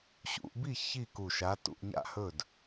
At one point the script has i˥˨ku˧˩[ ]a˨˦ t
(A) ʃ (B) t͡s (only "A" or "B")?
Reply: A